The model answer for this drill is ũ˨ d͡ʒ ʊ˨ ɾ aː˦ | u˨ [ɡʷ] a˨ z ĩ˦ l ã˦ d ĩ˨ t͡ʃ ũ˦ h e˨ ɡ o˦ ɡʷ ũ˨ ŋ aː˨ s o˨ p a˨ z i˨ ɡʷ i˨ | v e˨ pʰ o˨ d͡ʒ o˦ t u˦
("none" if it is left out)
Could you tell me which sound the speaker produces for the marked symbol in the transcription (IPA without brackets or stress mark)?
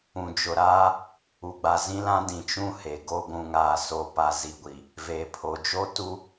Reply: ɡ͡b